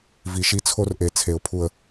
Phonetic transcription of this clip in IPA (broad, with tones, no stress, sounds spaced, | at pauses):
v i˨ ʃ i˦ t͡sʰ o˦ r ʔ e˨ t͡sʰ e˨ ʊ̯ pʰ u˨ ə̯